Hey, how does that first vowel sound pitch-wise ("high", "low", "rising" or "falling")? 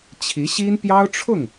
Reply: rising